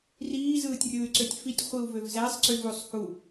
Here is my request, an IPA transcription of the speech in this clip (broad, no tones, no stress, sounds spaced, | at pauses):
r iː z ɯː tʲ rʲ ɯː y̯ ǀ ø tʲ f i tʲ χʷ i u̯ v ø v z æ sˤ ǀ y v u sˤ h u